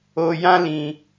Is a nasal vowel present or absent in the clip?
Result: present